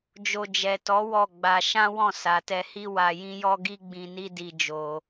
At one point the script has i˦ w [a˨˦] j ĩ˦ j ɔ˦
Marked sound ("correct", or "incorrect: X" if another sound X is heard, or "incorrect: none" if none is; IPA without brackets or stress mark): incorrect: a˧